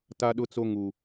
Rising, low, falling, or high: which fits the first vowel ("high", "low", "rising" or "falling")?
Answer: high